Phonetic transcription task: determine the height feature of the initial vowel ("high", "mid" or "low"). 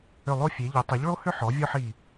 high